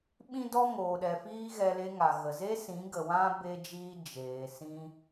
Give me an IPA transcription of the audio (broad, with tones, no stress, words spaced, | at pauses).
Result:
ɓĩ˦dɔ˦ŋoː˨ɗɛ˨ fiː˦ɣɛ˧ le˧ŋa˨ ɣə˨ze˦sĩ˨˦ ɡə˨wã˦ be˧d͡ʒiː˧ d͡ʒeː˨ sĩ˧